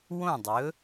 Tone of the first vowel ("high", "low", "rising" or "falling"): falling